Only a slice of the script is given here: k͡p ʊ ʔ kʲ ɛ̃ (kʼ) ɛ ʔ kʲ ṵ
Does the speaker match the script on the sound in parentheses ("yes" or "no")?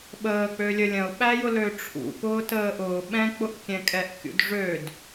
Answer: yes